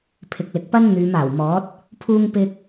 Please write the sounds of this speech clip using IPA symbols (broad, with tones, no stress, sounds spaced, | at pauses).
pʰ ɪ˨ k̚ l ɪ˨ k̚ p ɐ˥ n n̪ yː˨˧ m aː˨˩ w m ɔː˨˥ t̚ | pʰ uː˧ ŋ p ɪ˧ k̚